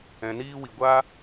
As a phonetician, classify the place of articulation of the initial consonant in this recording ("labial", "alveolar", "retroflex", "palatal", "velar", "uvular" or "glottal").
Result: alveolar